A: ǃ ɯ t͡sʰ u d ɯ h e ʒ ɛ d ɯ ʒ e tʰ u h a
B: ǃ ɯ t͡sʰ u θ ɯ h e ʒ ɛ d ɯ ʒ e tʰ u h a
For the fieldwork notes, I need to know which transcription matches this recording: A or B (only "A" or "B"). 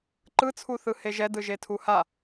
B